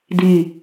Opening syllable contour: low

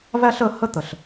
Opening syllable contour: high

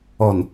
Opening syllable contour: low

